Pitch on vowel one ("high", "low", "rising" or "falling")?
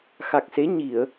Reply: low